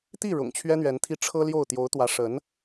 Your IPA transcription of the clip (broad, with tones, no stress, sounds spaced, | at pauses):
t̪ i˥˩ ɻ ʊ̰˨˩ ŋ t͡ɕʰ ɥ ɛ˥ n̪ ɥ ɛ˧˥ n t̪ʰ i˥˩ ʈ͡ʂʰ ɤ˥ l j o˥˩ ʊ̯ t̪ j o˧˥ ʊ̯ t̪ w ä˧˥ ʂ ə˧˥ n